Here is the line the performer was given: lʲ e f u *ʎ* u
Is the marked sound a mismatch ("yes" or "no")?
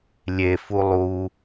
yes